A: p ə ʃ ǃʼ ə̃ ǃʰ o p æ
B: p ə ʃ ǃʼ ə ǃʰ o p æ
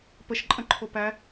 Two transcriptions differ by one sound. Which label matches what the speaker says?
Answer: A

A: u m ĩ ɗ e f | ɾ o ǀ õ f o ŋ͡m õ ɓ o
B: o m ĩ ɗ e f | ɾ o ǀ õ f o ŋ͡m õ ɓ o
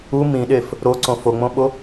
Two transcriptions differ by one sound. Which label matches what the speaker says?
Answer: A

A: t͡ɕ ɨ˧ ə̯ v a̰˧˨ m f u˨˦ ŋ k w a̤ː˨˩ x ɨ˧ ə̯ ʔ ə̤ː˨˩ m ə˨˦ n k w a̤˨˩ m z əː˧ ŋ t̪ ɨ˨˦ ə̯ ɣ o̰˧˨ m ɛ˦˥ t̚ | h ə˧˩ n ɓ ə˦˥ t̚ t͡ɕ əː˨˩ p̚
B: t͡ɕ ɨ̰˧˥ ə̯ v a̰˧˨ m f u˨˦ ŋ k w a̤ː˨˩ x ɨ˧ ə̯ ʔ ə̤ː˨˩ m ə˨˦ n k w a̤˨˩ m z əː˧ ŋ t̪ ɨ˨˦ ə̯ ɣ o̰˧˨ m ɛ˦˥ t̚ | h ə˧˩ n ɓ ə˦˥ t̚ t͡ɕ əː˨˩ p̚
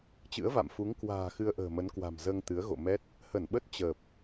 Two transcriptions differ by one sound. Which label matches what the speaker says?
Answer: B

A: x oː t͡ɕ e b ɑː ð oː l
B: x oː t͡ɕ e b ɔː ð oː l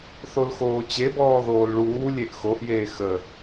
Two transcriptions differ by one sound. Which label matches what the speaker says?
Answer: B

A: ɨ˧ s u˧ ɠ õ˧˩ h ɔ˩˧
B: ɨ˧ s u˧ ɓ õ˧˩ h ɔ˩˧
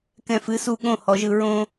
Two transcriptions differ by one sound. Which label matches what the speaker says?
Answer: A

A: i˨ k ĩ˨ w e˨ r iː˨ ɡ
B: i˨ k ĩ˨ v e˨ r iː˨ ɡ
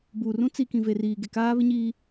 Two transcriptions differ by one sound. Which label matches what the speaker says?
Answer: B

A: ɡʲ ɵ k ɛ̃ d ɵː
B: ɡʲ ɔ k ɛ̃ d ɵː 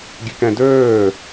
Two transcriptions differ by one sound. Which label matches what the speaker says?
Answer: A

